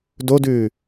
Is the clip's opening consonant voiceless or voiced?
voiced